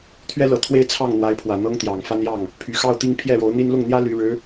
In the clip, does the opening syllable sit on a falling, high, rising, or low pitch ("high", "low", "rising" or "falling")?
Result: high